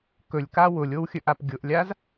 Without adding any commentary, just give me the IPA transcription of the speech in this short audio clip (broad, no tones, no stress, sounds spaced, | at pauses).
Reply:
k ɵ lʲ k a w ʊ lʲ o w xʲ ɵ ʔ a p ɡʲ ʊ ʔ lʲ a z